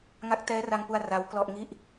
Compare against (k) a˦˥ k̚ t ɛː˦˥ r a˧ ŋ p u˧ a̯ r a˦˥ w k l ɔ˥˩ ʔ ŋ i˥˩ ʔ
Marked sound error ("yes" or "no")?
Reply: yes